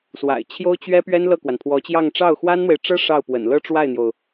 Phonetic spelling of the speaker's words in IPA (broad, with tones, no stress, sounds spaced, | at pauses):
s w a̰˨˩ ɪ̯ t͡ɕʰ j o˥ ʊ̯ t͡ɕ ɥ ɛ˥ p ɥ ɛ˥ n l ɤ˥˩ k w a˩ n pʰ w ɔ˧˥ t͡ɕ j ɑ˥˧ ŋ ʈ͡ʂ ɑ˥˩ ʊ̯ x w a˥ n n̪ w e˨ ɪ̯ ʈ͡ʂ ɤ˥ ʂ ɑ˥˩ ʊ̯ p w ə̰˨˩ n l ɤ˥ ʈ͡ʂ w a˥˩ ɪ̯ n̪ j o˩ ʊ̯